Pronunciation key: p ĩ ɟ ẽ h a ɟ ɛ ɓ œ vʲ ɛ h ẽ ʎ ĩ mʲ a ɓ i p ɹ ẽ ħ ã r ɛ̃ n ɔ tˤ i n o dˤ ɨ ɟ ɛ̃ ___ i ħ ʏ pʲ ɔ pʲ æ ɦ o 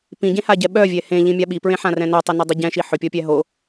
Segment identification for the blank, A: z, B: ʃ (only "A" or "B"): B